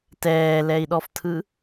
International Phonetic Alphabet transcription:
tɛːlɛi̯ɗɔftʰɯ

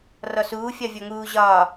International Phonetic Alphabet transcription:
rɔsuːfʲɒ vʲɔŋuː ʑɒː

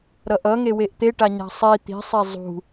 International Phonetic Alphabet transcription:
ɾʌʔʌŋe weʔt̪eʈaɲa̤ sˤi t̪i̤sˤe zˤṳ

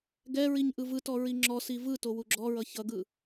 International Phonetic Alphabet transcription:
ɡɛɹiɲ ʔɯvɯtɔ ɹiŋ͡ǁɔsi vɯto wuɡ͡ǁɔɹʌ çʌɡɯ

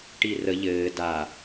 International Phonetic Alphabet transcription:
ʈirə ʎɘː da

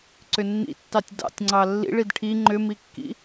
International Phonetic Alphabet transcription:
ǀʏnːḭtːɑtʲ dɑ̰tʲŋ͡ǀɑ lːḭɭ idʈʰi ŋ͡ǃʏmikːḭ

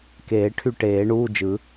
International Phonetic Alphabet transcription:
keː˨˩˦ʈʰy˥˩ ʈeː˨˩˦ɳuː˧˥˧ d͡ʒɯ˨˩˦

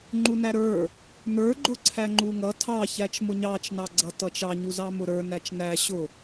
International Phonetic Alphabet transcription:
ŋ͡ǃunæɾə˞ | nə˞ɡ͡ǃʊ ǀʰæŋ͡ǃuŋʌ tʰɑçæt͡ʃmʊ ɲɑt͡ʃnɑɡ͡ǀʌ tʌt͡ʃɑɲuzɑ mʊɾə˞ næt͡ʃnæ ɕʊ

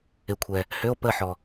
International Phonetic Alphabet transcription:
ɪ˨kʷʰɛ˨ | hʏ˧˥˧o̯pə˦˨ħɔ˨

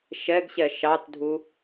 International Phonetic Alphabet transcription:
ʃɛɡɕɛ ʃɑtdʱu

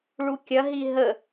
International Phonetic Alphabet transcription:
ɭukʲɐɦi ɦə

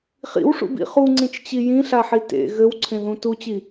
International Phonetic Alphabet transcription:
χḭwʂṵbḭ χuŋ͡ǀĩt͡ʃt͡ɕi jĩɬaħi tḛ ɣɘwǀʰẽðũ tut͡ɕi

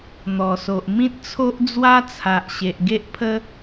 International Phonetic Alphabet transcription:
n̪ɔ˨˩so˨ʔ mĩ˦t̚t͡sʰo˦ʔ d͡zwa˦t͡sʰa˨ʔɕe˨ʔ ɡe˦ʔpʰə˦

